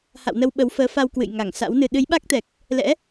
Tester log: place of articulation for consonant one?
glottal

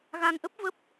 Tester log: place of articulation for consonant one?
velar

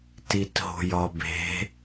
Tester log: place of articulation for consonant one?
alveolar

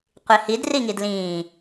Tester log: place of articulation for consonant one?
uvular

